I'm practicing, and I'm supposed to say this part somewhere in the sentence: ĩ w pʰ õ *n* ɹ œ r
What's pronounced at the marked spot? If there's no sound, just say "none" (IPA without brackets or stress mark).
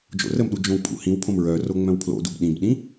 m